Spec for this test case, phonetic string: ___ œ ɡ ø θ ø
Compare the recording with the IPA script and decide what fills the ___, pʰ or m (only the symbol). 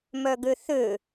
m